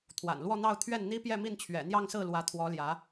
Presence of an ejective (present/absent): absent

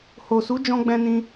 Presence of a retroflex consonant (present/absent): absent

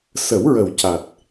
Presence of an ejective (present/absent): absent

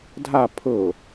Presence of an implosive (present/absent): absent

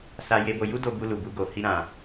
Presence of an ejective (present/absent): absent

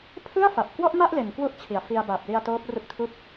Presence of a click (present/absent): absent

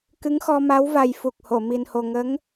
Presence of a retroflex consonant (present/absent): absent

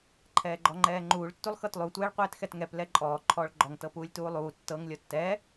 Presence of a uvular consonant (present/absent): present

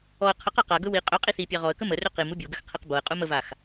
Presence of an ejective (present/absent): present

